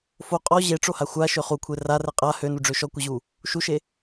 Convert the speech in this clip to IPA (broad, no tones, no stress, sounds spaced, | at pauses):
f o qʼ ɔ ʑ e ʈ͡ʂ o h a xʷ a ʃ ø χ u kʷʰ e r a r ɛ qʼ a h ø n u ɖ͡ʐ ø ʃ ɔ kʷ ɛ ʑ u | ʃ u ʃ e